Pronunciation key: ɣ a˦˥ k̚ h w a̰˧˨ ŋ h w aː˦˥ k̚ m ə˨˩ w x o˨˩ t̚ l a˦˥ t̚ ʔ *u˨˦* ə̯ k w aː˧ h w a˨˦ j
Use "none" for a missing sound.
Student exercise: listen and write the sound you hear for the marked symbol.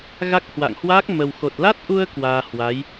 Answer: u˧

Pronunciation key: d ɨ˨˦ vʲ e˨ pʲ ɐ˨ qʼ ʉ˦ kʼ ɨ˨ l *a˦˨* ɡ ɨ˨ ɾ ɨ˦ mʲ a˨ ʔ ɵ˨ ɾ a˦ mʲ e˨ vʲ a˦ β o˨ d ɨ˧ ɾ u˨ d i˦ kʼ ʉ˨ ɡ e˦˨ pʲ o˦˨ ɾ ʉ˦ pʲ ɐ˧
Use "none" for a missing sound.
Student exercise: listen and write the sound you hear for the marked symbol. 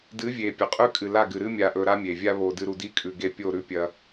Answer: a˦˨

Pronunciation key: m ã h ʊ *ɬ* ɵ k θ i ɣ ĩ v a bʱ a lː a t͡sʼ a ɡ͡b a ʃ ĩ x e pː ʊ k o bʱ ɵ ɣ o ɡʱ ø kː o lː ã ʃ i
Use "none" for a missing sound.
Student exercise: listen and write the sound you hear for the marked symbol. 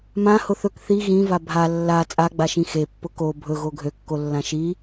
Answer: θ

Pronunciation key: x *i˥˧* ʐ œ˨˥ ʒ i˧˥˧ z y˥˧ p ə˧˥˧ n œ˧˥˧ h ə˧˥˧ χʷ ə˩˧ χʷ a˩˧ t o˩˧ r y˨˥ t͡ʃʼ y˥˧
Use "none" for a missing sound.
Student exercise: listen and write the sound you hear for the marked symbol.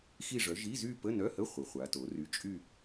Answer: i˥˧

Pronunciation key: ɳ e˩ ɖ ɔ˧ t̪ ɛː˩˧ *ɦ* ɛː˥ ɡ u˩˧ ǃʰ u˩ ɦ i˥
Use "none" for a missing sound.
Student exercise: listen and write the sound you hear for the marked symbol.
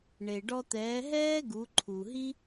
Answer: ɦ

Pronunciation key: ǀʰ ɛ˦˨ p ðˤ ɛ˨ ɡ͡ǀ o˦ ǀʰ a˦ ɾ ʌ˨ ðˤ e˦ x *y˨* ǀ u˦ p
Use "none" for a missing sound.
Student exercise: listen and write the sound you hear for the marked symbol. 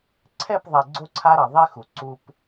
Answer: u˨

